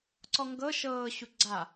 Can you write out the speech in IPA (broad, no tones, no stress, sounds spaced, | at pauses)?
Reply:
ǀ ɔ ŋ ɡ ɤ ʃ ɤː ɕ u ɡ͡ǀ a